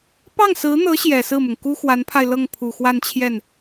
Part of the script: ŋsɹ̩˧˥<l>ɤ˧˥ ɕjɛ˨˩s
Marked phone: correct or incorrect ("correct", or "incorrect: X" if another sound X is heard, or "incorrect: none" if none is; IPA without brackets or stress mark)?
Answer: incorrect: n̪